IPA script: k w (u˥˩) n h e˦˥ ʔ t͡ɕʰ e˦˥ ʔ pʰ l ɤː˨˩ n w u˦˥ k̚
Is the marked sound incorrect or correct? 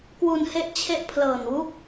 incorrect: u˧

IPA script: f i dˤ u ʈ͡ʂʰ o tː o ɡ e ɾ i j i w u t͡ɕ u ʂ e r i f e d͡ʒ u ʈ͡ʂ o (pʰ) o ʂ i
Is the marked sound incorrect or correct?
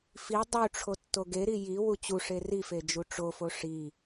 incorrect: f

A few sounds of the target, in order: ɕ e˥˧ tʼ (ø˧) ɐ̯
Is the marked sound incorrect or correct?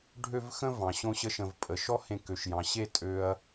correct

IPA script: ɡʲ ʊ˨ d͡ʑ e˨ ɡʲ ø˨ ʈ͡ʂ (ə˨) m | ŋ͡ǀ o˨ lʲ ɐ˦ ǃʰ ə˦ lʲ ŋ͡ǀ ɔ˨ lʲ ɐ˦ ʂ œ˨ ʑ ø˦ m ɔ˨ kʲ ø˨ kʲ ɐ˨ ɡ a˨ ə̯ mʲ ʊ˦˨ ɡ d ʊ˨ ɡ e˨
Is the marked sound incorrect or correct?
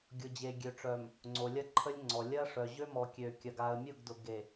incorrect: œ˨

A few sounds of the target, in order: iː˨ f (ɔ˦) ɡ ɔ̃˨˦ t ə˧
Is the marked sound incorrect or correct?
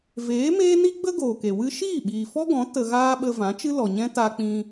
correct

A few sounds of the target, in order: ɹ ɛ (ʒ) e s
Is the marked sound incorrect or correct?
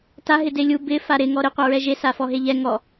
correct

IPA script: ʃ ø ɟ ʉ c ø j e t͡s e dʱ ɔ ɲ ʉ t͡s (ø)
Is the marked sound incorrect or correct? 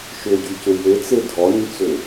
correct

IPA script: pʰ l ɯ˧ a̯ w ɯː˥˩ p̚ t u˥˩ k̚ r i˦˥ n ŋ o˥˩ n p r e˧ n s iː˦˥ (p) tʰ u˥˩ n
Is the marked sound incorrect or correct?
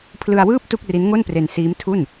incorrect: m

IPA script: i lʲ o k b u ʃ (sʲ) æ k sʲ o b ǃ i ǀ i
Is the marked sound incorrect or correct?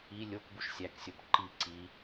correct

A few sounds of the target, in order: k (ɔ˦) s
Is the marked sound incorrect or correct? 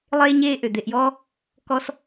correct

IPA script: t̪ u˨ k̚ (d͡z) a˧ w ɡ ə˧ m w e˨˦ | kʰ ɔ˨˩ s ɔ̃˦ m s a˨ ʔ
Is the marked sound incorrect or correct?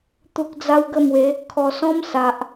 correct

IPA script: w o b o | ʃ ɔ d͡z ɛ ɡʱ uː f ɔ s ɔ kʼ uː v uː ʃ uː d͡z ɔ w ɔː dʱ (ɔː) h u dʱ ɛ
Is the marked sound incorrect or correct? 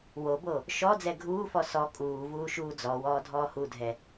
correct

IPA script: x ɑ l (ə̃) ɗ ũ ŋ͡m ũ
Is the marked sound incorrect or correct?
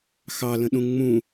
correct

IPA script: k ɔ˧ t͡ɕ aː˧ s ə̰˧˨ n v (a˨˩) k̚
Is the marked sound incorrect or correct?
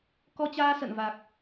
correct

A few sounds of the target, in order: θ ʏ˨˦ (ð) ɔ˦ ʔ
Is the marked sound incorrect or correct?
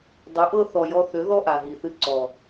correct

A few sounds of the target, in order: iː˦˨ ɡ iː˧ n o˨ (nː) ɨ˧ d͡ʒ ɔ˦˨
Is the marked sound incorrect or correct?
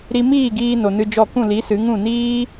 incorrect: n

